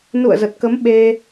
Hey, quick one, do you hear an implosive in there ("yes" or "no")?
yes